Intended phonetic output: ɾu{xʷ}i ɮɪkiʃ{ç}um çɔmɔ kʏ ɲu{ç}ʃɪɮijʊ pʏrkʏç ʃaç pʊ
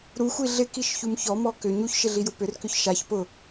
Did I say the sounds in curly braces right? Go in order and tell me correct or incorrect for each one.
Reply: correct, correct, correct

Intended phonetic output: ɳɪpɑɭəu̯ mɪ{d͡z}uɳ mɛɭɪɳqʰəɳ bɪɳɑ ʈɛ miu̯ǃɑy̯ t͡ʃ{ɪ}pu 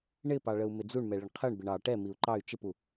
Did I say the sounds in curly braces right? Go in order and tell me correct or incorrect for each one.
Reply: correct, correct

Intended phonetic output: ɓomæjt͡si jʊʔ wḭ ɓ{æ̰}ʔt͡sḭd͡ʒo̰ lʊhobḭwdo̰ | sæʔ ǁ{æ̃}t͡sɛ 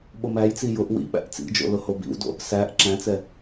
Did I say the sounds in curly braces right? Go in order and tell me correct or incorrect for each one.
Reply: correct, correct

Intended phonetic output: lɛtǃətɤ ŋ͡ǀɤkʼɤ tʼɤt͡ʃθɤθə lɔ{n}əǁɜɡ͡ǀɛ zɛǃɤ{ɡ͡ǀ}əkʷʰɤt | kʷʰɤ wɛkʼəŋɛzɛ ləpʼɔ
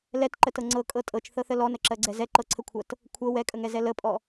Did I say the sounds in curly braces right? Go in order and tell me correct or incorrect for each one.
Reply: correct, incorrect

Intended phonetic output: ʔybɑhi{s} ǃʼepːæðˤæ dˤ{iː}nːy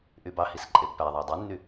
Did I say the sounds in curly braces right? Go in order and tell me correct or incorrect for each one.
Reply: correct, incorrect

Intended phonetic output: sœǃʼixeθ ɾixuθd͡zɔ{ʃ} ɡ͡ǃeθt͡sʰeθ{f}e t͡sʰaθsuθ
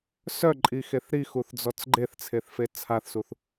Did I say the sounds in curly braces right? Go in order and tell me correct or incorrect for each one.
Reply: incorrect, correct

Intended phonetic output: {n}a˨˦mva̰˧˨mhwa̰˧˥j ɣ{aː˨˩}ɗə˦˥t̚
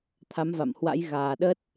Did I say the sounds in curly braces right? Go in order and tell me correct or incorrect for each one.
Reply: incorrect, correct

